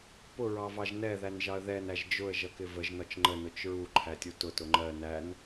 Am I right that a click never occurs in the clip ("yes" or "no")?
no